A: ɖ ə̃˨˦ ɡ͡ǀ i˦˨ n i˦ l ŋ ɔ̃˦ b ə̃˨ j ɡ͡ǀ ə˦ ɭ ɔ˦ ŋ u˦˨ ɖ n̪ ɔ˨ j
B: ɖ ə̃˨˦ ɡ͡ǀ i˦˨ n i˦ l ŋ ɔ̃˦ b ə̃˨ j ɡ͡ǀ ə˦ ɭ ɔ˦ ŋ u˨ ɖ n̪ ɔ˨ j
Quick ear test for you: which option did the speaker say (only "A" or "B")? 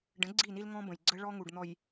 B